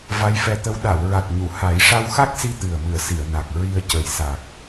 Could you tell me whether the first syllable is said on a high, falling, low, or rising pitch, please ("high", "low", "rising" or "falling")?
rising